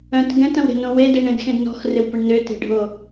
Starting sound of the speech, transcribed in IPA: œ̃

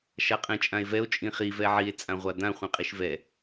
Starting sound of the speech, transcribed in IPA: ʃ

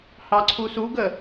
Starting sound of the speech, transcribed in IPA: h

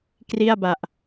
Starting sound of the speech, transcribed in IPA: k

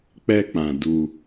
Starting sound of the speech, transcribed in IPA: k͡p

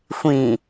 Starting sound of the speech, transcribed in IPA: xʷ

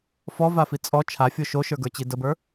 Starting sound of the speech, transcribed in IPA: f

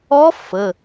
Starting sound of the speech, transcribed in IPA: ɔ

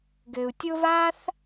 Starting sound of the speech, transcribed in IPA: ɡ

